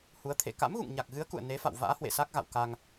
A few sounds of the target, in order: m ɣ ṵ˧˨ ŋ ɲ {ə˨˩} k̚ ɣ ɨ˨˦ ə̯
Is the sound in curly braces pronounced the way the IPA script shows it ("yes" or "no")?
no